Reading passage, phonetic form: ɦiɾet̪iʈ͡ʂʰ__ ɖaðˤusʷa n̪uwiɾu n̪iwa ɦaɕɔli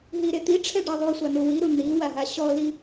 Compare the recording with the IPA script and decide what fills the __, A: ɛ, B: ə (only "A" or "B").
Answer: A